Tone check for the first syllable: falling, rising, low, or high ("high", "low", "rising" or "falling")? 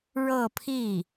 falling